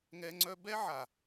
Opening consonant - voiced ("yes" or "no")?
yes